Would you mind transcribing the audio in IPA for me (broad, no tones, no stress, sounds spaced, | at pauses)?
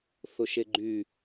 θ ʊ ʃ e ɡ͡ǃ y